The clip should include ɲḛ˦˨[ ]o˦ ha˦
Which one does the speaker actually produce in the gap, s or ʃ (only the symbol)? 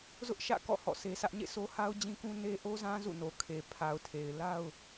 s